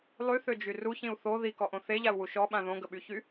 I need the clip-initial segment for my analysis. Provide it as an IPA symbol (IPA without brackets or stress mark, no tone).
lˠ